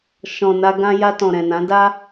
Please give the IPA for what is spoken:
ʃ ɔ̃˨ n a˧ ɡ ã˧ j a˧ t ɔ̃˨ ɾ ɛ̃˨ n ã˨˦ d a˦

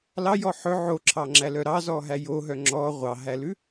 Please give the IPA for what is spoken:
l ɑ j ɔ ħ ɵ ʕ o ǁʰ ɑ ŋ͡ǁ æ l œ ɾ ɑ z ɔ ɦ æ j o ɦ œ ŋ͡ǁ ɔ ʁʷ ɑ ɦ æ l ʉ

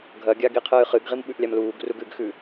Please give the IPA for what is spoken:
ɡʱ ɐ ɡʲ a ɡ i qʰ ɨː χ ɨ ɡ ʁ i m ɓ ʉ ʔ lʲ a m l uː ɡ r u ɡ ʉ ɡ x ʉ

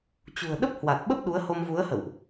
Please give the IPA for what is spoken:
t͡ɕ ṳ˨˩ ə̯ ɗ ə˦˥ p̚ h w a˨˩ t̚ ɓ ə˦˥ p̚ ɗ u˨˦ ə̯ h o˧ m v u˨˦ ə̯ h ə̰˧˨ w ʔ

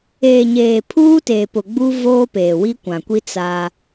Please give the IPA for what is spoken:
eː˨ ɲ eː˨ pʰ uː˦ t eː˨ p ʊ˨ ɡ͡b u˦ v oː˦ p eː˨ w i˦ kʷ ã˨ kʷ i˦ t͡s a˦

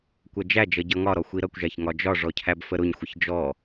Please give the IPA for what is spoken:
kʷ ɜ d͡ʒ æ d͡ʒ ʌ ɟ ʌ ŋ ɒ ɾ ɔ xʷ i ɾ ʌ kʷ ʒ æ ç ŋ ɒ d͡ʒ ɒ ʐ ɔ cʰ æ b f ə ɾ ʊ ɲ xʷ ə ç d͡ʒ ɔ

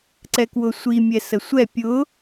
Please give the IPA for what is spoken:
ǀ ɛ k w ʊ sʷ i mʲ ɛ s ə sʷ ɛ pʲ ʊ

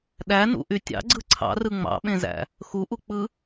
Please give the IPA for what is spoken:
ɗ æ n ṵ ʔ y tʲ ɑ̰ ɡ͡ǀ ɯ ǀʰ ɑ̰ r ɯ ŋ͡m ɑ̰ ɓ ẽ z æ̰ | x u ʔ u k͡p ɯ

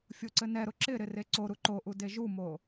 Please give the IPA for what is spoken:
fʲ ʊ ǀ ɘ n ɛ ɾ ʊ ǁ ɪ ɾ ɪ r e ǀ o ɾ u ǃ o ʔ u d e ʒ u m o

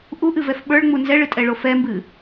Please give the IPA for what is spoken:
ʔ u ʔ ɨ v ɛ f ɓ ə˞ ɭ ŋ͡m u n z ɛ ɭ ɨ tʼ ɛ ɭ o f ɛ m b ɨ

